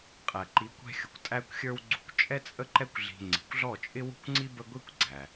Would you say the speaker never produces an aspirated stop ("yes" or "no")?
yes